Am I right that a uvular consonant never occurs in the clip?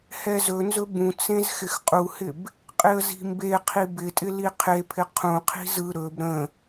no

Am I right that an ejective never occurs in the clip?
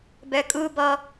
no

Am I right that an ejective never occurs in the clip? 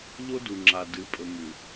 no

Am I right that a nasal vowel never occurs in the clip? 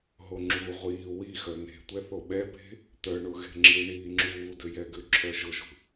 yes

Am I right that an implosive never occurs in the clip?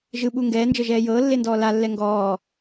no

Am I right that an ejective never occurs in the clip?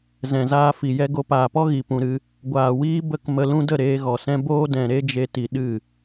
yes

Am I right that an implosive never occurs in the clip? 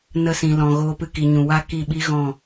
no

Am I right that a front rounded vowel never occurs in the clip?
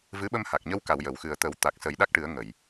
yes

